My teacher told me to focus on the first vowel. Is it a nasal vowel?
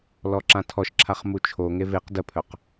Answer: no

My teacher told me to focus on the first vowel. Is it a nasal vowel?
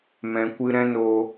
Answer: yes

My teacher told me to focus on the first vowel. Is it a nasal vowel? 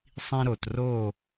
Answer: yes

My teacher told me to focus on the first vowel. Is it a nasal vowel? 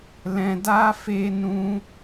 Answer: yes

